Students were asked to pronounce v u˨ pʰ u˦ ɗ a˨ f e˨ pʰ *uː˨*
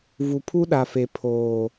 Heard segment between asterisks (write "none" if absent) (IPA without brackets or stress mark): oː˨